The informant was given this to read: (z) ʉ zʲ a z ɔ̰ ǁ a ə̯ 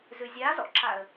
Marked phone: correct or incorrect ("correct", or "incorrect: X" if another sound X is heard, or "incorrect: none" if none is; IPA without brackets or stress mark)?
correct